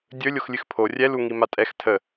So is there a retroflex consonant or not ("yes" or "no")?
no